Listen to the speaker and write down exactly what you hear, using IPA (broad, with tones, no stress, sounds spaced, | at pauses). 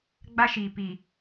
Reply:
ɡ͡b a˦ ʃ iː˨ p i˨